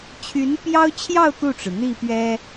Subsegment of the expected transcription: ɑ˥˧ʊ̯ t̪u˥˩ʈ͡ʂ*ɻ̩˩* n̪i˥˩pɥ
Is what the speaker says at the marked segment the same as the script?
yes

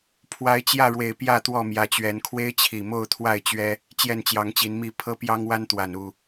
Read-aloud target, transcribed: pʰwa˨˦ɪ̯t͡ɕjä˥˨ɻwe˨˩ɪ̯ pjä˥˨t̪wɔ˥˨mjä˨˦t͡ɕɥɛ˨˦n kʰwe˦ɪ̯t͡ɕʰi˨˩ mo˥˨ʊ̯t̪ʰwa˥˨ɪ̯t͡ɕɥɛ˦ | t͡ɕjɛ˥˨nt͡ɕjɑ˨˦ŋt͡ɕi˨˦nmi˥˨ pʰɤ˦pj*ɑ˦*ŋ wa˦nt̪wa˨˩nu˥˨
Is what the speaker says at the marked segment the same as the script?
yes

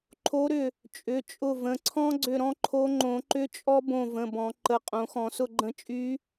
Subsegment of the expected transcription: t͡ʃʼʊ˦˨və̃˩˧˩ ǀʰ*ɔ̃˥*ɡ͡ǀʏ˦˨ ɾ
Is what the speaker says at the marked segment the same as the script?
yes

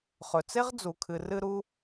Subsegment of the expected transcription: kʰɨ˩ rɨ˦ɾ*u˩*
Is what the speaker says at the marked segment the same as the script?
no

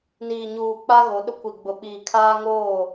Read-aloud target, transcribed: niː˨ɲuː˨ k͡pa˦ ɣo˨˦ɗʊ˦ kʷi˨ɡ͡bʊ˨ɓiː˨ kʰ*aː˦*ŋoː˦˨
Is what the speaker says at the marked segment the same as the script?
yes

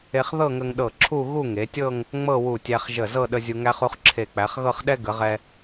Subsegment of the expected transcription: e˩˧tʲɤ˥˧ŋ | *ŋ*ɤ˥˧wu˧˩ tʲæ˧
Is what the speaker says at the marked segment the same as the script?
no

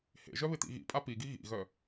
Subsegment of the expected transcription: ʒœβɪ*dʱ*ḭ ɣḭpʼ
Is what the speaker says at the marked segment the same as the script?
no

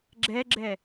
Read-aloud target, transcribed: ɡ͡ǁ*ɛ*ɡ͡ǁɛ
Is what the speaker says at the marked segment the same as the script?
yes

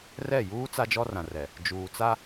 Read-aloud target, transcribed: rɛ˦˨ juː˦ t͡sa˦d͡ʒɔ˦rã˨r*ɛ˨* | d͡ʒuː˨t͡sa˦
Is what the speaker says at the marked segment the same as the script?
yes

